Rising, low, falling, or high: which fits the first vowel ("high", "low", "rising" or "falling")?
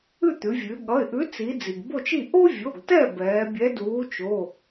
falling